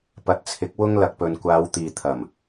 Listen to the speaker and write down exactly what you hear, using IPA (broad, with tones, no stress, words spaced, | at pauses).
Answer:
pɐ˨t̚ t͡sʰɪ˨˥k̚ wʊ˥ŋ lɐ˨k̚pɵ˨nkʷaː˨˧wt̪iː˨ t̪ʰɐ˨˩m